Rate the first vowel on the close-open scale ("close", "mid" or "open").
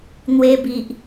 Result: mid